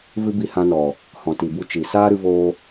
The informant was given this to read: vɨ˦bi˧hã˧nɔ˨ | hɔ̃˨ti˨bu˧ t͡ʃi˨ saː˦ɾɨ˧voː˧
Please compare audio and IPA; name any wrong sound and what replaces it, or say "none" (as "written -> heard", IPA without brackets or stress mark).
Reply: none